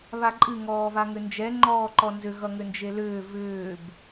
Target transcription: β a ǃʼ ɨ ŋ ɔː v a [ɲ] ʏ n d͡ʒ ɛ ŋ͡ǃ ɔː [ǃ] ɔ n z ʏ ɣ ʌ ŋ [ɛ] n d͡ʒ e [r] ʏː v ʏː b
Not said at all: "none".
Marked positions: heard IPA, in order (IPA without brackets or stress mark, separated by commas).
ŋ, ǃ, ʏ, l